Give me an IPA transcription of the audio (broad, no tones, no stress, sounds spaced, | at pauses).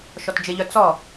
ʃ ɔ t d͡ʒ ɪ ʎ œ t͡s ɔ